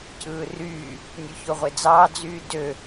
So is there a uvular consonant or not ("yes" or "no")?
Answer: yes